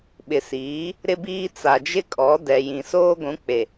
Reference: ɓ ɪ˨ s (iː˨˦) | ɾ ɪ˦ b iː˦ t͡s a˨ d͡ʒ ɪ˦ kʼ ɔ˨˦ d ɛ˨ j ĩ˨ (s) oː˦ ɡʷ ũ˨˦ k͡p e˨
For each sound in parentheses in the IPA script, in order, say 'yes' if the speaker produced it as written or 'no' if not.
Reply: yes, yes

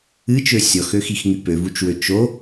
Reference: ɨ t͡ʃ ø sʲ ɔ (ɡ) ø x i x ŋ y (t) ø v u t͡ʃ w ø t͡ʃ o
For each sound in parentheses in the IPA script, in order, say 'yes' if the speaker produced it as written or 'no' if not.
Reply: no, no

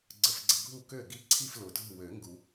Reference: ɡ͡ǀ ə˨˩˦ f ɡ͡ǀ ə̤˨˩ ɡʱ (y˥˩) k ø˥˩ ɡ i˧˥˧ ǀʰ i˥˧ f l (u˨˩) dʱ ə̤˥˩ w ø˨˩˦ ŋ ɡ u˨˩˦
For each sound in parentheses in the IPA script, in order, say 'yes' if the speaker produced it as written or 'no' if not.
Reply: no, no

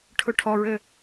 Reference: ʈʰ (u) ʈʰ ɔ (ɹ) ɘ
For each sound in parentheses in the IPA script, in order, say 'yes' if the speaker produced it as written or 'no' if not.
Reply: no, yes

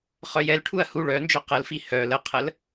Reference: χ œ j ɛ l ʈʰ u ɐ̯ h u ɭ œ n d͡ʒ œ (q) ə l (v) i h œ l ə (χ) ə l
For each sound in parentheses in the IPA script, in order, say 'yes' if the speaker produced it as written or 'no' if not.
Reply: yes, no, no

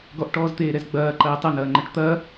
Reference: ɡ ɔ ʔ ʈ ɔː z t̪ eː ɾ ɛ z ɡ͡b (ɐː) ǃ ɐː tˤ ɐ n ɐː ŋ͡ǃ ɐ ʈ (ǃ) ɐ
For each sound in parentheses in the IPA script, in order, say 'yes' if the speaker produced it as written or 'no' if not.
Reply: yes, no

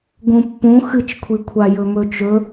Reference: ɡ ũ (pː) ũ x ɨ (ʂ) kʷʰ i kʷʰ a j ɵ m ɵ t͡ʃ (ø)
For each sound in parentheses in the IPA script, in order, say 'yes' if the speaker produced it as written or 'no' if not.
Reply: yes, no, no

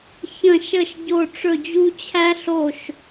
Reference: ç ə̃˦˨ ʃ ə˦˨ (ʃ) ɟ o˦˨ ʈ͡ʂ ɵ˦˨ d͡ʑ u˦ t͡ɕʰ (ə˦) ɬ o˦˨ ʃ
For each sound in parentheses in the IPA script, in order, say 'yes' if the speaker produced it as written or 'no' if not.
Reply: yes, no

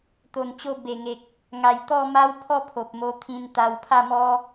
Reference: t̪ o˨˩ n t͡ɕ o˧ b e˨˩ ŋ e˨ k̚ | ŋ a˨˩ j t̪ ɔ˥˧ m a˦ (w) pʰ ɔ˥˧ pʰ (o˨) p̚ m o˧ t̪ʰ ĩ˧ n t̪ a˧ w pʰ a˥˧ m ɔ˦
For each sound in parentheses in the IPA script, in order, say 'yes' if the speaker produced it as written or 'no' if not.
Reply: yes, yes

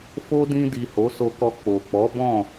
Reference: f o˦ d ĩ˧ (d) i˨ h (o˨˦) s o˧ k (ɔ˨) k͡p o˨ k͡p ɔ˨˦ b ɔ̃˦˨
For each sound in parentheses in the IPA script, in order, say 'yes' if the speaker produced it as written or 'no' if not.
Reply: yes, yes, no

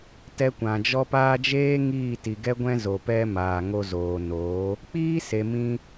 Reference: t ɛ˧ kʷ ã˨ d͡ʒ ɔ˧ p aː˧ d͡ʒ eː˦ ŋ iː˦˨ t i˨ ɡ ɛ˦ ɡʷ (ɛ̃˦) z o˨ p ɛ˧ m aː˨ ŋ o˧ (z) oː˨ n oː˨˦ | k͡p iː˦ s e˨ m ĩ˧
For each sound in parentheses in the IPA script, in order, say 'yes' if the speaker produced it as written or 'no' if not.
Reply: yes, yes

